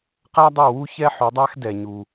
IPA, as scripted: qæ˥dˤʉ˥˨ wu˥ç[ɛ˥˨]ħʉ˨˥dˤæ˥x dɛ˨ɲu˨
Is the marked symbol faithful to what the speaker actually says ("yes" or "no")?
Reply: no